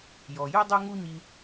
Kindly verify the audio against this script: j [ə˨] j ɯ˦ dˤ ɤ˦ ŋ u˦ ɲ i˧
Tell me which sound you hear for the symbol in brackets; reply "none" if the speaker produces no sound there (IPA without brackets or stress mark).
ɔ˨